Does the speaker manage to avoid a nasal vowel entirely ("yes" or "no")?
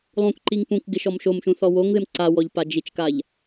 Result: no